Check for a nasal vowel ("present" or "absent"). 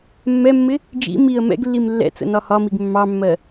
absent